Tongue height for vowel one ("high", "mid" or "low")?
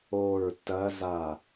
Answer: mid